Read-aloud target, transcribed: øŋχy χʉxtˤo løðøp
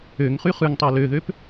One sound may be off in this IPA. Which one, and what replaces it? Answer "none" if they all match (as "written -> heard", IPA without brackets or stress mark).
x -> ŋ